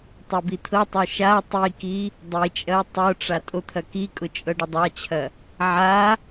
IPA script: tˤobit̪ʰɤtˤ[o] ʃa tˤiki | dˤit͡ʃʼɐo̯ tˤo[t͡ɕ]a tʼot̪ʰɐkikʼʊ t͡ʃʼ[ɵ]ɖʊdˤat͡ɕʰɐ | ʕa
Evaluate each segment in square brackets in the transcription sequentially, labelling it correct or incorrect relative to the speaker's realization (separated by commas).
correct, incorrect, incorrect